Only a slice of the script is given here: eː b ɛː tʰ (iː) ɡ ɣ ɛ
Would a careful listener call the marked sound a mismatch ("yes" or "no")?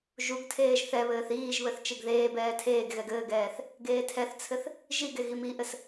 yes